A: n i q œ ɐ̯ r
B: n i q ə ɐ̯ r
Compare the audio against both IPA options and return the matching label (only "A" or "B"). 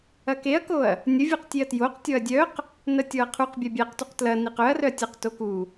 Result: A